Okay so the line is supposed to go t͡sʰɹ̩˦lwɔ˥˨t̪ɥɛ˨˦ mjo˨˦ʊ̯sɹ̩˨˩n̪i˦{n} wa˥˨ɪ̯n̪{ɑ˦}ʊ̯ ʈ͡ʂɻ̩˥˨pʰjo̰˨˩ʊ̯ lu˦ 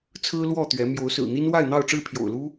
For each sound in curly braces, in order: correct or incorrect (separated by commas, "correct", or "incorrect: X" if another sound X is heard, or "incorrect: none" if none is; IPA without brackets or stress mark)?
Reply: correct, incorrect: ɑ˥˨